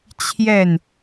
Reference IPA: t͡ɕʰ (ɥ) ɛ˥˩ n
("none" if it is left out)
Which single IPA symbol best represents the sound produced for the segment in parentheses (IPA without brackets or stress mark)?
j